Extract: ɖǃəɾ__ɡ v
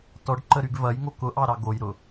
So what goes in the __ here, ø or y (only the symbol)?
y